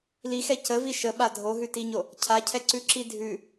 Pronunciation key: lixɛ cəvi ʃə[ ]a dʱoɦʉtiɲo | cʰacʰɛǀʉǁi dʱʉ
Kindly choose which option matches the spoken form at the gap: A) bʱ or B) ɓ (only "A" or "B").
B